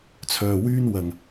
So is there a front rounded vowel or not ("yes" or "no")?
yes